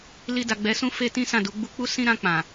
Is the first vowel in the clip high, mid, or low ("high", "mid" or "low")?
high